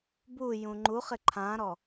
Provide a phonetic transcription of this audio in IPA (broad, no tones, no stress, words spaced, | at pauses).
bu jũŋ͡ǃuχɪ ǃʰãɾɔ